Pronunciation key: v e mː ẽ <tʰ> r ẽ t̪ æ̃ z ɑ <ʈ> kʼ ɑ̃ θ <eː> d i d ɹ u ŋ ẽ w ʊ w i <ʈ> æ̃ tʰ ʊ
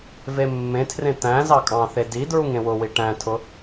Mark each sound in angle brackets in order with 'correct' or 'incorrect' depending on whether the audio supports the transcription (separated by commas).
correct, incorrect, incorrect, correct